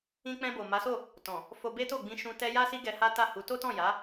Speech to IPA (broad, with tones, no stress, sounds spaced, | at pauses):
ĩ˧ k͡p ɛ̃˧ b o˨ m a˨˦ s o˦˨ | t ɔ̃˨ | f o˧ b e˦ t o˦˨ ɡ͡b ĩ˧ ʃ ũ˧ t ɛ˦ j a˦ s i˦ ɡ ɛ˧ h a˦ t a˦˨ h u˨˦ t o˦ t ɔ̃˦˨ j a˨˦